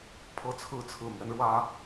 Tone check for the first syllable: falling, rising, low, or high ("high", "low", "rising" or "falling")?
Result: high